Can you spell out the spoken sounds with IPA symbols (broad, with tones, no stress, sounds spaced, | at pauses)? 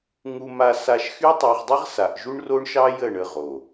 ŋ u˧ m a˧ s a˧ ʃ x y˦ tˤ ɑ˧ ʁ dˤ ə˦ ʁ s a˨ ʔ ʒ u˦ ɳ r o˦ ɳ ʃ ɑ˦ j ə˦˨ ɳ ə˦˨ ʁ o˨